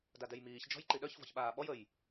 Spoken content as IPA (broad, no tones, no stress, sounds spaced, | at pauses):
d a d ɛ j m iː ç d͡ʒ ɔ̤ j ǃ i ɗ œ ç v ɔ̤ ç ɓ aː ɓ ɔ j ə j